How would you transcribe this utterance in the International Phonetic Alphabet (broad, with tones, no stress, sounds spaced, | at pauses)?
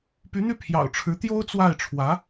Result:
p y˧˥ n̪ y˥˩ pʰ j ɑ̰˨˩ ʊ̯ ʈ͡ʂʰ ɻ̩˧˥ t̪ j o˥ ʊ̯ t͡s w a˥˩ ɪ̯ ʈ͡ʂʰ w ä˧˥